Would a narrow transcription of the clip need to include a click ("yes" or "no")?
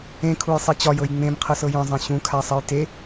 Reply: no